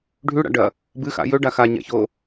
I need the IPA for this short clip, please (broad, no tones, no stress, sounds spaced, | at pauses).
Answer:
ɖʱ ʉ ɽ a̰ ɖ ɐ | b ɨ x a̰ j ɵ ɖ a x a ɲ a̰ ç o